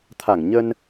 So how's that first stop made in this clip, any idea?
aspirated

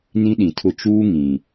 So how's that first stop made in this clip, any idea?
implosive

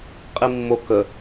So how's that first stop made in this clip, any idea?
ejective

